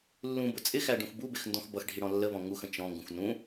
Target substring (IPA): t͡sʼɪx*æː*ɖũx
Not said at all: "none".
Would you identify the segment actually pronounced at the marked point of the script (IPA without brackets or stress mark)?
æ